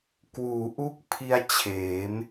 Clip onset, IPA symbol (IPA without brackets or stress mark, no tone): k